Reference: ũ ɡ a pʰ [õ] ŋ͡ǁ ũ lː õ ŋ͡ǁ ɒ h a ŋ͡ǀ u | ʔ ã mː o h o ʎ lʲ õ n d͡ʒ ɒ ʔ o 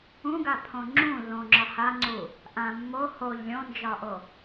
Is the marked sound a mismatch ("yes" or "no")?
no